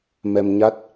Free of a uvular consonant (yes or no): yes